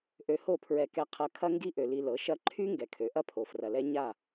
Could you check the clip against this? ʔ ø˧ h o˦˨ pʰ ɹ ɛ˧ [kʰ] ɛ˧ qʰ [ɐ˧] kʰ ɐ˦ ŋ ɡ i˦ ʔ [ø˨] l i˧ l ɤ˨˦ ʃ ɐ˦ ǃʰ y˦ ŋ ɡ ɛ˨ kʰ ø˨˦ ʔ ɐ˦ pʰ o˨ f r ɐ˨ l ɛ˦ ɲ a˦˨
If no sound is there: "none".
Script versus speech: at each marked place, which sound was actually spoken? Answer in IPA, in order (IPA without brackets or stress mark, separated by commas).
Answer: k, ɐ˧, ø˨